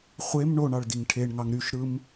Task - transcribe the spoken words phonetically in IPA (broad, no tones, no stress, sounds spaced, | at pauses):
χʷ e m ɳ o ɳ ɑ ɭ d i ŋ ʈʰ e ɳ ŋ ɑ ŋ ɾ y ʃ ɾ ɯ m